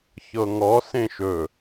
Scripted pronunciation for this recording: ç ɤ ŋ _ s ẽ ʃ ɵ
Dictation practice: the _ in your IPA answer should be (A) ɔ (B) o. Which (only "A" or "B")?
A